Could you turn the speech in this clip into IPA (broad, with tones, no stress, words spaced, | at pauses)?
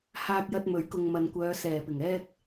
haː˧k̚jɐ˧t̚mɵ˨˥ɥkʊ˨ŋ mɐ˨nkʷœː˨˧ sɛː˨˩pɪ˨˩ŋɛː˥k̚